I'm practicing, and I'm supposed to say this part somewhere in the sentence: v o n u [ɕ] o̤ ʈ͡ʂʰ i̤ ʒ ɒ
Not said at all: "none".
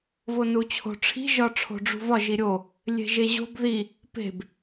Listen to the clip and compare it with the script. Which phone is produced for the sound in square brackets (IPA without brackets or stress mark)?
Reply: t͡ɕʰ